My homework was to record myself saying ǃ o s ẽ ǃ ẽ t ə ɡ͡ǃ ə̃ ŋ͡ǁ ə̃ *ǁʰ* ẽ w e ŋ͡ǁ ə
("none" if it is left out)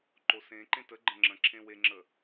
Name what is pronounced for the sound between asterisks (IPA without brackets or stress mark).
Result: ǁʰ